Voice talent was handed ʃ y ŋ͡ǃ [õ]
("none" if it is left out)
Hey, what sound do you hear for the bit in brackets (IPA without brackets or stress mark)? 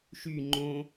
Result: õ